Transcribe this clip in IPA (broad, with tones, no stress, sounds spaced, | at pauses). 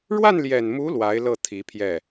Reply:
ɻ w a˥˩ n l j ɛ˨˩ n m u˧˥ l w a˧˥ ɪ̯ l ɤ˥˩ t̪ʰ i˧˥ pʰ j ɛ˥˩